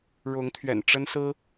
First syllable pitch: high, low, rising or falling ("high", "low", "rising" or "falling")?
rising